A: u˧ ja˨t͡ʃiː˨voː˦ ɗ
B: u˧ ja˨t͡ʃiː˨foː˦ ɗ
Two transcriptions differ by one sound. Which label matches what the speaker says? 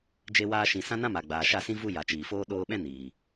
B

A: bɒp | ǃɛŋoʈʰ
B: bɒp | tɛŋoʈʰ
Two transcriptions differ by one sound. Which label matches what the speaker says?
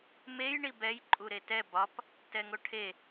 B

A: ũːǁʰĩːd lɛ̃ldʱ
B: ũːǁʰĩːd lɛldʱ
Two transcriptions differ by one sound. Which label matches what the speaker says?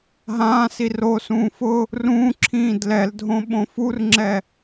B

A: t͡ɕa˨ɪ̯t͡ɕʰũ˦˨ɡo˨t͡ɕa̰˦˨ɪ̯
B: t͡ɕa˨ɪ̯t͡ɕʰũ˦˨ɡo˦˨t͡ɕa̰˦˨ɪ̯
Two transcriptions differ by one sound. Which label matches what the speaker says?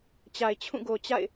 A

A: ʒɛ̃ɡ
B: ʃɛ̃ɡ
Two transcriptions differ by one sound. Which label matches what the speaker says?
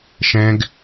B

